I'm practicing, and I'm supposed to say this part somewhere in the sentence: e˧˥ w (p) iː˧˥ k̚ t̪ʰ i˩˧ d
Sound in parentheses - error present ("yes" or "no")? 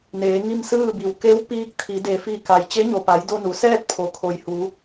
no